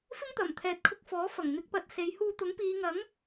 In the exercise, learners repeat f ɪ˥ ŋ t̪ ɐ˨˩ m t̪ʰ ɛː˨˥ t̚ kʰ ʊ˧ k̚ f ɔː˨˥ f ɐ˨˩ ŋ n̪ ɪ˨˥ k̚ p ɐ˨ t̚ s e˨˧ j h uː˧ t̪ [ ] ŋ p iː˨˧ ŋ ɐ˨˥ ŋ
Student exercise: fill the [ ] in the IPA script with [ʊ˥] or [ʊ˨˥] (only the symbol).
ʊ˨˥